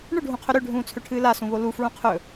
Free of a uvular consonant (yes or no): no